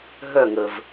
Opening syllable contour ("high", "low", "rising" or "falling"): falling